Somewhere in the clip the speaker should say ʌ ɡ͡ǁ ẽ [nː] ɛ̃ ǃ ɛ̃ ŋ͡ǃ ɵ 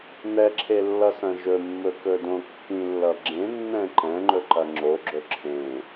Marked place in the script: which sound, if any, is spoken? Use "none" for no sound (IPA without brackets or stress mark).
nː